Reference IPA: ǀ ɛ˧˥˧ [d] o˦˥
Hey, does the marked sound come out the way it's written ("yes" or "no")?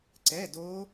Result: yes